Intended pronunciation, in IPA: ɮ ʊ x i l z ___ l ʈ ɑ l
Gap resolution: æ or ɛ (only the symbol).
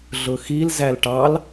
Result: æ